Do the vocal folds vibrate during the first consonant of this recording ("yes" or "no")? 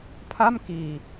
no